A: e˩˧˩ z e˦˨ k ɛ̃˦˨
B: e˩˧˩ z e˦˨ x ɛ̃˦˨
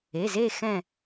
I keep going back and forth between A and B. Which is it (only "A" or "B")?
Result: B